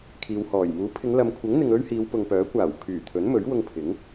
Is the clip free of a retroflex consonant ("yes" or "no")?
yes